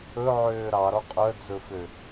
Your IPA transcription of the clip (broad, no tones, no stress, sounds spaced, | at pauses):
ɵ ʕ øː ɾ ɑ ɾ ɔ qʼ œ d͡z ɵ f ø